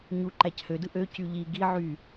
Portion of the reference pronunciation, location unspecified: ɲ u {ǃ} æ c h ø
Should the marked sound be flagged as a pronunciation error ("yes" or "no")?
no